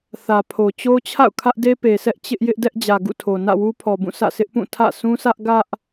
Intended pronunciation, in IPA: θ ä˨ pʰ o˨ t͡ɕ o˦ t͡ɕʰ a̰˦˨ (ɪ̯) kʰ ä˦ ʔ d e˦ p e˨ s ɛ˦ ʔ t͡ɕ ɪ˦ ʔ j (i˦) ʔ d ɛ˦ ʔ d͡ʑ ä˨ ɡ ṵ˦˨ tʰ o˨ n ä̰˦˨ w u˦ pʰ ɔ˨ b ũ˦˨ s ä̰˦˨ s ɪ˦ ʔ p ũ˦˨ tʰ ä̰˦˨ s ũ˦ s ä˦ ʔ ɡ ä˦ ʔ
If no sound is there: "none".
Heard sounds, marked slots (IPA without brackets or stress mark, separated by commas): ʊ̯, ɪ˦